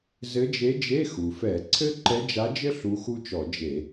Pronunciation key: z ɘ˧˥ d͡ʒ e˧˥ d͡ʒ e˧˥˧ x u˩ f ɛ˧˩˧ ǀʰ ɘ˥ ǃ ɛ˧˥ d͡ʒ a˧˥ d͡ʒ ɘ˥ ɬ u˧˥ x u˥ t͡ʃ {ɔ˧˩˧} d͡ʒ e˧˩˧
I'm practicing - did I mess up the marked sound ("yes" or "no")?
no